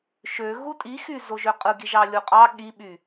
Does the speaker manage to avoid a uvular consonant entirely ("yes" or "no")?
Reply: no